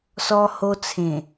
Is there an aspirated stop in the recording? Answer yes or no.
yes